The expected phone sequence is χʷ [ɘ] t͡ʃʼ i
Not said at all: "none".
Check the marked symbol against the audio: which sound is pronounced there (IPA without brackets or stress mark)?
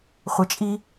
ɘ